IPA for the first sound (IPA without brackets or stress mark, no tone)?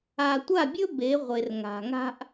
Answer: a